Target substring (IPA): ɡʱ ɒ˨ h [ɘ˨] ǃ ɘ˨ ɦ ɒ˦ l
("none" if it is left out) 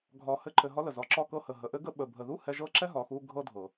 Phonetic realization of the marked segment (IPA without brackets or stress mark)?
ɘ˧